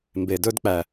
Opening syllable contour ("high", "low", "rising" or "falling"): low